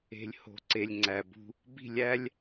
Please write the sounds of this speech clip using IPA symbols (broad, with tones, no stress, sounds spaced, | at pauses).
e̤˨ lʲ h o̤˨ ǀ e˨ lʲ ŋ͡ǀ æ˨ b ṳ˦ | b i̤˦˨ lʲ æ˦ lʲ